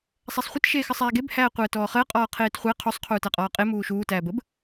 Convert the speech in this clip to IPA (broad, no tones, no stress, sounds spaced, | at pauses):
sˤ æ sˤ χʷ ə t ʃ eː x ə sˤ æː ɡ e b h æː qʷ əː t ɔː χ əː qʼ ɔː qʰ eː t χʷ æ qʰ u sˤ qʰ uː t æ qʼ ɔː qʼ e m uː ʃ uː t æː b ə b